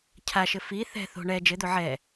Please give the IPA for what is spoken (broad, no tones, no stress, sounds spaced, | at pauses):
cʰ a ʃ ɘ f i θ ɛ̤ θ o̤ ɳ ɛ d͡ʒ ɘ d̪ o ʕ ɛ